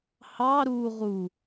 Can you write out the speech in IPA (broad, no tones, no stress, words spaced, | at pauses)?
hɑ ɾu ʁu